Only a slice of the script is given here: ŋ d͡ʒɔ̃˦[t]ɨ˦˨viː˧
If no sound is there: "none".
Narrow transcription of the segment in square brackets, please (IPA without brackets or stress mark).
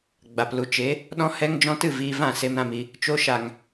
t